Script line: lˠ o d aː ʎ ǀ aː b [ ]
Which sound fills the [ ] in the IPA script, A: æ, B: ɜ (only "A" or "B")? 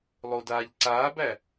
A